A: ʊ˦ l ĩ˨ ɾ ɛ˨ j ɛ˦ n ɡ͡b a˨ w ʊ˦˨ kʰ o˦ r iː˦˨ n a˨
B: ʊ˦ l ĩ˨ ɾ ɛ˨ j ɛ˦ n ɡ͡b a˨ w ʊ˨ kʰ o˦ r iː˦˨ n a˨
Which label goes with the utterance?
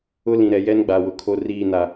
B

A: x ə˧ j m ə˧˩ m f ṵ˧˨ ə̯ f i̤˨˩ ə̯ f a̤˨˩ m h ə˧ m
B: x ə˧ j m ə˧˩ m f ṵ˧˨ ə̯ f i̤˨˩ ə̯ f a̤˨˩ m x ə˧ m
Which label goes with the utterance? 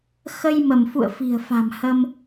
A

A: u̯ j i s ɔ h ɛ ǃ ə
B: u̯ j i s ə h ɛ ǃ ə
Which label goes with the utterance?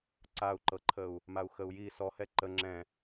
A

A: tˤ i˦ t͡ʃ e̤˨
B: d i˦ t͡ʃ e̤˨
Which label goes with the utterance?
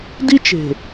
B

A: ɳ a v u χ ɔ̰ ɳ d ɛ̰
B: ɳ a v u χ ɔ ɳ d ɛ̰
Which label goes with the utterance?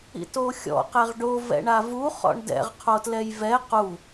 A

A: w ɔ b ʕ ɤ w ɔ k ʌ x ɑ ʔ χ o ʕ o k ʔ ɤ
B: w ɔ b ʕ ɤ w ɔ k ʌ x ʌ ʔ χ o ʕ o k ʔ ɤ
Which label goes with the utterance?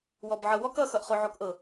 B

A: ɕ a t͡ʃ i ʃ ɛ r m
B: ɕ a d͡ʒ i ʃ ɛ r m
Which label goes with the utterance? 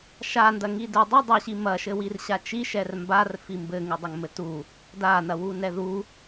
A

